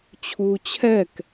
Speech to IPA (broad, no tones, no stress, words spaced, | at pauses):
t͡ɕʰuːt͡ɕʰɛk